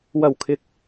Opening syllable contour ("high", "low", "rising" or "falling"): low